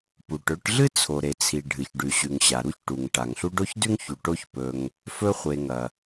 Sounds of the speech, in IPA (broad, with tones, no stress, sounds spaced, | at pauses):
p u˩ ʈ ɵ˦ ʈ ɮ ɨ˥ t͡sʰ o˩ ɾ e˩ t͡sʰ i˩ ɖʱ ɨ˩ ç ɖ ʉ˩ ɕ ʉ˩ ŋ ɕ a˩ ɾ u˦ ç ʈ u˩ ŋ ʈ a˩ ŋ ɬ u˦ ɖ o˥ ç d ʉ˥ ŋ ç u˩ ʈ o˦ ç p ɵ˨ ŋ | f ɵ˦ χʷ e˨ ŋ ɐ˩